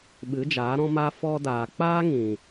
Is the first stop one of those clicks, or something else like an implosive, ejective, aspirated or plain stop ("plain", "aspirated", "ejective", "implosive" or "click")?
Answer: implosive